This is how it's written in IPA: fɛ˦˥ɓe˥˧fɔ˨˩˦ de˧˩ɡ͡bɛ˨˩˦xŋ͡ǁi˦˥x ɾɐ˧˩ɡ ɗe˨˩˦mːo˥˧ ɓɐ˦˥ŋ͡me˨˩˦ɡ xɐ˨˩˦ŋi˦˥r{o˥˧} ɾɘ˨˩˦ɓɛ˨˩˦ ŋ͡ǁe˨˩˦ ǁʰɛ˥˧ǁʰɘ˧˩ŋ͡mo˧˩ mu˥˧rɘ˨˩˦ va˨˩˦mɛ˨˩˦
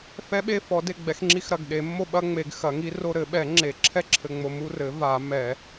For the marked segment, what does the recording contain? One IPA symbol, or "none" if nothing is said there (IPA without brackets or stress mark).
o˥˧